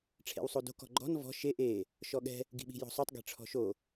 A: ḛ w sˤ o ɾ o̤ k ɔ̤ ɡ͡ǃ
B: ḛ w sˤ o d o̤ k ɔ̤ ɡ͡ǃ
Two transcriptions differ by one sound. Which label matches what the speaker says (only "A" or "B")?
B